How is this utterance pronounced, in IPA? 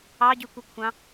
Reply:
ɑ ɟ y kʷ i kʷʰ ɑ̃

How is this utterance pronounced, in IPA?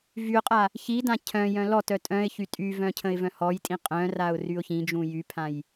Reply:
v y ʊ̯ qʼ a | ç i d ã cʰ œ̃ j œ̃ l ɔ t œ tʼ œ̃ ɪ̯ ç y tʼ y v œ̃ cʰ ə̃ ɪ̯ v œ̃ h ɔ j tʼ ĩ qʼ œ̃ r a ʊ̯ r y ʊ̯ ç ĩ d͡ʒ ũ j y pʰ ã j

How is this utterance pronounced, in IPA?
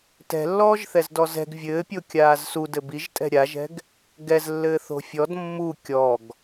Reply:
t ɛ̤ lː ɔː ʒ θ ɛ z d ɔ z ɛ̤ ɡ vʲ ɘː pʲ o kʲ aː z s u d ɘ b i ʒ tʼ ɛ̤ ɾʲ a ʒ ɛ̤ ɡ | ɡ ɛ z lː ɘː θ o̤ fʲ ɔ d mː u kʲ ɔ ɡ

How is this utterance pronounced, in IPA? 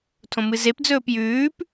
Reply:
tʰ õ m ɨ z e p d͡z ɵː p j ʉː p

